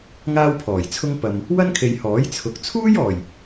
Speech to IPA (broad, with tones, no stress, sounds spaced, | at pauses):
ŋ aː˥ w pʰ ɔː˨˩ j t͡sʰ ʊ˥ ŋ p ɐ˨ m | w ɐ˥ n kʰ e˨ j h ɔː˨˥ j t͡sʰ ʊ˨˥ k̚ t͡sʰ uː˥ j ɔː˨˩ j